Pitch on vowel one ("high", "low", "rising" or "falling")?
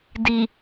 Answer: low